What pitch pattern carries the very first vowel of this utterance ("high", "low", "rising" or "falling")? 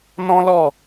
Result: high